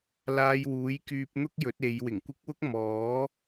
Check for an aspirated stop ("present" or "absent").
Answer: absent